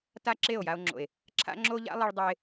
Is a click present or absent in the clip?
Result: present